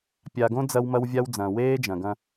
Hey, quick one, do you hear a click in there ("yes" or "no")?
no